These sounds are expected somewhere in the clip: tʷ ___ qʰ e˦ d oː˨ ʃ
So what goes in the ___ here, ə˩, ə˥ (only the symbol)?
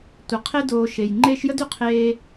ə˩